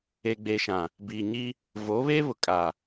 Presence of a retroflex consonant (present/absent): absent